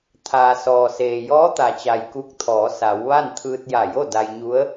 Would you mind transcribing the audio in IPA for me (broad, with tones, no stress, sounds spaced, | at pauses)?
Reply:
t̪ʰ aː˩ s ɔː˩ s eː˩ j ɔː˧˥ t̪ a˩ t͡ɕ a˩ j k u˧ k̚ t̪ʰ ɔː˩˧ s a˩˧ w ʋ a˥˨ n t̪ʰ ɯː˧ t̚ j a˧˩ j o˥˨ d a˧ j ɲ u˧˥ ə̯